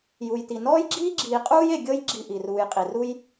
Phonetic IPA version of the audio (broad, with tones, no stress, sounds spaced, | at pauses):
j u˨ j t i˨ n ɔː˥ j ɡ͡ǁ iː˥ ɡ͡ǁ iː˨ qʼ uː˥ j e˨ ɡʲ ɤ˥ j ɡ͡ǁ i˦ ʔ i˩ r uː˨ j qʼ i˩ r u˥ j